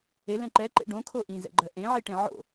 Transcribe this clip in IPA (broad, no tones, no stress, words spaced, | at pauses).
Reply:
elɛ̃ ǃɛǃḛ ɖõkʰo ʔĩzɛ̰ɡ͡ǃɜ ʔẽʕiʈẽ ʕo̰